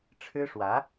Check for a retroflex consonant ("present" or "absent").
present